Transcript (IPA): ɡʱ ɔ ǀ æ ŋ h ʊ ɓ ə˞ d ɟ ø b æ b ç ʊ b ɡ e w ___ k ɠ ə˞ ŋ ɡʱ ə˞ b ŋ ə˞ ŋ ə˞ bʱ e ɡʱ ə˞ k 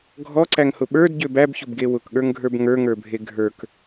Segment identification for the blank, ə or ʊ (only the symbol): ʊ